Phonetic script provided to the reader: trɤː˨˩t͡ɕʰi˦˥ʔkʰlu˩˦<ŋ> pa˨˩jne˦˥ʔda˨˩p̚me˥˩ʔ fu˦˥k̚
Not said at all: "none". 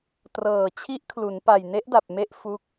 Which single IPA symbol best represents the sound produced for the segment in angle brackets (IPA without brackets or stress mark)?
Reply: n